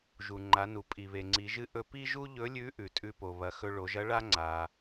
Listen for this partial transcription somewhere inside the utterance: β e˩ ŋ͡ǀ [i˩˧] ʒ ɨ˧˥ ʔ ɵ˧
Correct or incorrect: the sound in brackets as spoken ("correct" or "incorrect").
correct